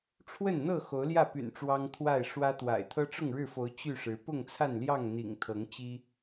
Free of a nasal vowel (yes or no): yes